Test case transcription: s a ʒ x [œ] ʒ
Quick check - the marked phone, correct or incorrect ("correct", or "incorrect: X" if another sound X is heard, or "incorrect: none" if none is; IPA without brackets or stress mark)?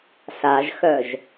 correct